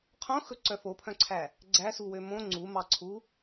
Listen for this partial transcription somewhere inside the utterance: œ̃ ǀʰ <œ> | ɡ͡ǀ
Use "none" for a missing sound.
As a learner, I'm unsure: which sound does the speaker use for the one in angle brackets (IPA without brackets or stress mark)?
æ